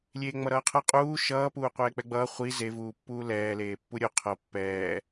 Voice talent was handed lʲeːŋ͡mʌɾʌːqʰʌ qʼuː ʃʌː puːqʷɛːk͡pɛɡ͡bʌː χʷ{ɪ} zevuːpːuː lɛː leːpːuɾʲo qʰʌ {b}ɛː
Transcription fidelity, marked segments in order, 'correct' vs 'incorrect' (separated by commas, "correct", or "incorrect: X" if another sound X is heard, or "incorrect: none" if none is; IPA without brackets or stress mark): incorrect: i, incorrect: pː